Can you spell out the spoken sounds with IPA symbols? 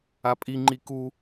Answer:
a pʼ i ŋ͡ǃ i k u

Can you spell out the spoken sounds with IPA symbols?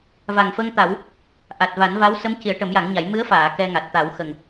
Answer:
v a˨˩ ŋ f ə˧ ŋ t̪ a˨˩˦ w | ʔ a˨˩ t̚ v a˨˩˦ n v a˧˥ w s ə˧˥ m c i˨˩˦ ə̯ ʈ ə˨˩˦ m j a˨˩˦ ŋ ɲ a˨˩˦ j m ɨ˧˥ ə̯ f aː˨˩˨ k ɛ˧ ŋ a˨˩ t̚ t̪ a˨˩˦ w x ə˨˩ ŋ

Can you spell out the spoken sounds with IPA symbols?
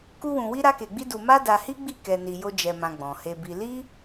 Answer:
k u˦ w ũ˧ w i˦ ɾ a˦ k e˧ ɡ͡b i˦ d u˧ m a˦ d a˧ h i˦ ɡ͡b i˦˨ k ɛ˧ n i˧ j o˦ d͡ʒ ɛ˧ m ã˧ ɡ͡b ɔ̃˨ h e˧ b i˧ l i˦

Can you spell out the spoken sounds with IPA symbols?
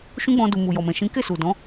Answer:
ʃ ũ˦ ɡ͡b ɔ̃˧ d u˨ m u˨ j ɔ˨ m ɛ̃˨ ʃ ĩ˨˦ k e˦˨ s u˨ d ɔ̃˨˦

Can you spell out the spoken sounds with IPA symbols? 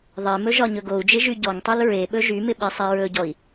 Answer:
ðˤ e m ɵ ʒ ɒ ɲ ɵ ɡ o u̯ d͡ʒ ɪ ʒ y ɟ ɔ ŋ tˤ y l ɹ e ɓ ɵ ʒ y m ɪ ɓ i sˤ i ɹ ɵ ɟ ɔ i̯

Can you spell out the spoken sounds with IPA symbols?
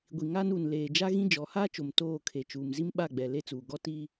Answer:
ɡʷ i˨ ŋ aː˦ n uː˨ n l eː˨ d͡ʒ a˦ ɣ ĩ˦ d͡ʒ ɔ˨˦ h aː˦ t͡ʃ o˨ m t oː˦˨ kʰ e˨ t͡ʃ uː˨ m z i˦ m ɓ a˦˨ ɡ͡b ɛ˨ l e˦˨ t͡s uː˨ ɡ ɔ˦ t iː˦

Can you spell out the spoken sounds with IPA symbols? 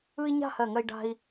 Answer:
ɯ˥ i̯ ɲ a̤˥˧ h ɜ˧˩ ŋ ɜ˧ i̯ ɖ a̤˧ i̯

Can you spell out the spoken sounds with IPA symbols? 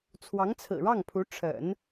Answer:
t͡sʰ w ɑ˧˥ ŋ t͡sʰ ɹ̩˨˩ ɻ ɑ˥˩ ŋ pʰ u˧˥ ʈ͡ʂʰ ə̰˨˩˦ n

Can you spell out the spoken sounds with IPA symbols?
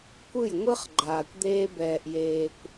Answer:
kʷ ɯ˦˨ j ŋʷ ɯ˦ χ ɡ͡ǃ aː˨ kʷ d̪ eː˧ b ɛː˨ ʔ j eː˨ kʷ

